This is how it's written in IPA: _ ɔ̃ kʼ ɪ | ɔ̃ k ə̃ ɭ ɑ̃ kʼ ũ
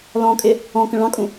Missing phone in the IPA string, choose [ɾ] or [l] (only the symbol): l